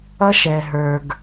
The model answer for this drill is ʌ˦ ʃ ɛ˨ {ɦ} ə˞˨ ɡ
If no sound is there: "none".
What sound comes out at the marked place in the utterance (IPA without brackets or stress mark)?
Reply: ɦ